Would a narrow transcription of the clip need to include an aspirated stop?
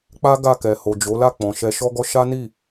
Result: no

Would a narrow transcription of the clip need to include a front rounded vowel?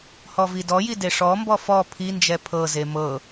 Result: no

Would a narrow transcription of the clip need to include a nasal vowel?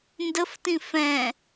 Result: yes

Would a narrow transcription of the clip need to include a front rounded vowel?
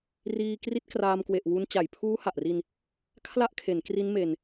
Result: no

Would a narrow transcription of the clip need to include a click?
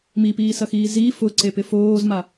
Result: yes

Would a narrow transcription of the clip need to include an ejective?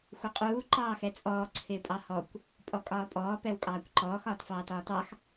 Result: yes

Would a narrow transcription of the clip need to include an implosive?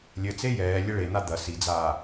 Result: no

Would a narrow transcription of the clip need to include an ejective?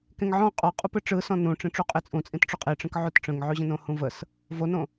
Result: yes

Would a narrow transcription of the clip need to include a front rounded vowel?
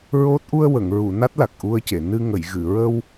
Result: no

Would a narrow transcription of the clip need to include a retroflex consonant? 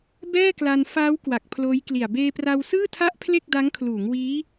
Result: no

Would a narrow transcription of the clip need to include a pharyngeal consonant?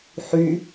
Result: yes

